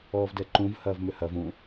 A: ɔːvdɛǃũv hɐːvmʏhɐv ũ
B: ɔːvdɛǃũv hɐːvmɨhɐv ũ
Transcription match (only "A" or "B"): A